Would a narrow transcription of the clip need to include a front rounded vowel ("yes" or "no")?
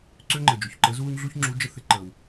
yes